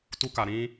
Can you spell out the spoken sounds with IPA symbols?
t u˦ k a˨ ɾ ĩ˦

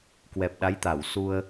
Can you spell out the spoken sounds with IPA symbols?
k w ɛ˨˩ p̚ ɗ a˨˦ j t̪ a˧˩ w s u˧ ə̯

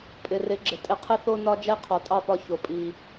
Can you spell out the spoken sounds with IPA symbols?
pʼ ɪ˨ r ɪ˨˦ ɡ͡ǁ ɪ˨ tʼ ɪ˧ qʰ ɪ˦ θ o˦ n ɒ˦ d͡ʒ ɛ˦ qʰ ɔ˨ tʼ ɑ˦˨ p ɒ˧ ç o˨ pʼ i˨

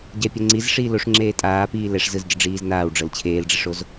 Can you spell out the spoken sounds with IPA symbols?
ɟ ɛ pʲ o ŋ͡ǀ i z ʂ iː l o ʂ ŋ͡ǁ eː tʼ aː p iː l ɛ ʂ z ɯ z ɟ ɯ ɖ͡ʐ iː z n aː w ɖ͡ʐ ɤ l t͡ɕʰ eː l ɖ͡ʐ i ʂ o z

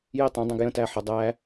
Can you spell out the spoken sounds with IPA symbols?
j i tˤ ũ dˤ æ̃ ɡ j ə̃ t æ ħ ə dˤ æ

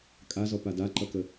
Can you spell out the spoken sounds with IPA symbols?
kʼ a z ɔ p a d a ǃ ʌ k ə

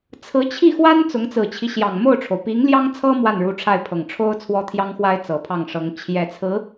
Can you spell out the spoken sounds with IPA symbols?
t͡sʰ ɹ̩˧˥ t͡ɕʰ i˥˩ x w a˥ n t͡s ʊ˧˥ ŋ t͡s ɹ̩˨˩ t͡ɕʰ i˦ ɕ j ɑ˨˩ ŋ m o˥˩ ʊ̯ ʈ͡ʂʰ o˩ ʊ̯ p i˧˥ ŋ l j ɑ˥ ŋ t͡sʰ ɤ˥ m w a˥˩ n ɻ u˧˥ ʈ͡ʂʰ a˥˩ ɪ̯ pʰ ɤ˨˩ ŋ ʈ͡ʂʰ o˥ ʊ̯ t͡sʰ w ɔ˥ t̪ʰ j ɑ˥ ŋ x w a˥ ɪ̯ t͡s ɤ˨˩ pʰ ɑ˥˩ ŋ ʂ ɤ˧˥ ŋ t͡ɕʰ j ɛ˨˩ t͡sʰ ɹ̩˧˥

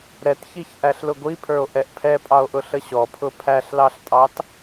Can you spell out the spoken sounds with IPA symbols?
ɾ ɛ t ç i ç ʔ æ ɬ l ʊ ɡʷ i pʰ ə˞ o̯ ʔ ɛ ʔ pʰ ɛ pʼ ɑ o̯ ʔ ʊ ɬ ə ɕ ɔ pʰ ʊ pʰ æ ɬ l ɑ ɬ tʼ ɑ t

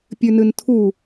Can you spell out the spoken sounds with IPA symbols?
pʲ ʉ n ɨ n tʰ u

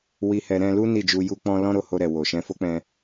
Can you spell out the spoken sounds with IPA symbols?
w i˧ h ɛ˧ ɾ ɛ̃˧ l u˦ n i˦˨ d͡ʒ u˧ j u˦ k͡p ɔ̃˦ l ɔ̃˦ ɾ o˦˨ h o˧ ɾ ɛ˨ w o˨ ʃ ɛ̃˧ f o˦ k͡p ɛ̃˧

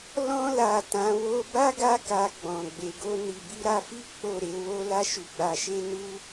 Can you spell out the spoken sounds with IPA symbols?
l ɔ̃˧ l a˨ t ã˨˦ w o˦ b a˦ ɡ a˧ k a˨ ɡ͡b ɔ̃˨ ɡ͡b e˨ ɡ o˧ n i˨ b i˧ ɾ a˧ f i˦ k͡p o˦˨ ɾ e˨˦ w o˦ l a˧ ʃ u˨ ɡ͡b a˨ ʃ e˧ n u˦

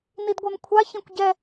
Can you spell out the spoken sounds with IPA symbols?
n i d ɡʷ ɛ m kʷʰ a ç ẽ kʷ ɟ ɛ

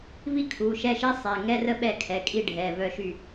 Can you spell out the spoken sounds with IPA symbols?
v i˥ kʰ u˩˧˩ ʃ ɛ˥˨ ʃ i˥ sˤ ɛ˩˧˩ ŋ ɛ˥ r ə˥ ɓ ɛ˥˨ kʰ ɛ˩˧˩ kʼ i˥˨ ɖʱ ɛ˩˧˩ v œ˥˨ ʃ y˥˨

